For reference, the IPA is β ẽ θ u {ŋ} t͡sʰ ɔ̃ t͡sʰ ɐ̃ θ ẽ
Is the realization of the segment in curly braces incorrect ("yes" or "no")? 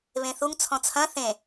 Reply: no